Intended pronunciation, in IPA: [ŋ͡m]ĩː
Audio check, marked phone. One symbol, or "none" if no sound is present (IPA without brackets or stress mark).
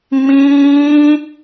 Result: ŋ͡m